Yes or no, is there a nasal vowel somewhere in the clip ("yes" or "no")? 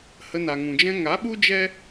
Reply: yes